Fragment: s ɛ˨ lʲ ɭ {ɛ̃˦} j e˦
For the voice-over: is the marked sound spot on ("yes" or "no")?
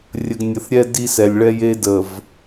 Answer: no